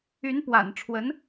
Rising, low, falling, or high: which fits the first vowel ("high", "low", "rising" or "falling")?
rising